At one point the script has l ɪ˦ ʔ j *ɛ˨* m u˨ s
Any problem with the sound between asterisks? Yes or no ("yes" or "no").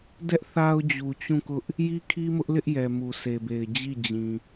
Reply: no